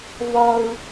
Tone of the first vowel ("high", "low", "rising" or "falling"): high